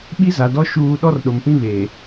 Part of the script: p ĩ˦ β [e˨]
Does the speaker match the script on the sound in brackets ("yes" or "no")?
no